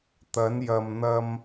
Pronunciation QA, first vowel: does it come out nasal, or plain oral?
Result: oral